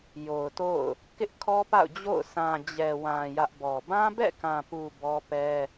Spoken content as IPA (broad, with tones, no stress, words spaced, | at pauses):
jo˨ʊ̯to̰˦˨ʊ̯ | kɪ˦ʔkʰɔ˦pa̰˦˨ʊ̯ d͡ʑo̰˦˨ʊ̯ sʰã˨d͡ʑɛ˨wã˨ jä˦ʔ bɔ˨ bã˦bɛ̰˦˨kã˨pu˨ bɔ˦pɛ˦